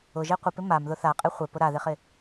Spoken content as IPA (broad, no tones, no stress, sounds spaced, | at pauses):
ʊ ʒ e qʷ ɪ p ɪ m a m ð ʊ θ a qʼ e χʷ ɪ p ʊ ɾ a ð e χ ɪ